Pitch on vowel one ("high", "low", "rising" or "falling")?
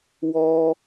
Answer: high